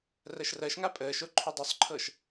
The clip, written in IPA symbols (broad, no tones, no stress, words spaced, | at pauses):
rɜʃrɜʃŋa pʼəːʃo ǃʰʉdˤusˤǃʰɤʃ